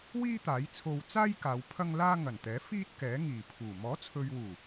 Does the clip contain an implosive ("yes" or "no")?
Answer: no